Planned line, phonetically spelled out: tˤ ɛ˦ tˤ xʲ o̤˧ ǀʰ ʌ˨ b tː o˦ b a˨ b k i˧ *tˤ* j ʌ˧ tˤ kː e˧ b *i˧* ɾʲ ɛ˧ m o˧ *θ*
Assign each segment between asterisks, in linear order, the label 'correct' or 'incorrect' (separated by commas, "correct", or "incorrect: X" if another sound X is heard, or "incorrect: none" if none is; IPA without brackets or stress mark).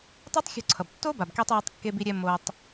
correct, correct, incorrect: tˤ